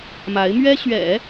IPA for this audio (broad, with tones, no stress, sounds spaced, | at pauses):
m a˧˥ ɪ̯ m ɥ ɛ˥ ɕ ɥ ɛ̰˨˩˦